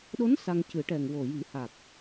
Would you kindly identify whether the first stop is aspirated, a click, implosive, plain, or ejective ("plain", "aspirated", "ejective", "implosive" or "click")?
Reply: implosive